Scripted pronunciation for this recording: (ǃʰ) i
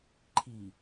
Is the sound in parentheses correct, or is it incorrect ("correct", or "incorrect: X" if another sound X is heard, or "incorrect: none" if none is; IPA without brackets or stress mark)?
correct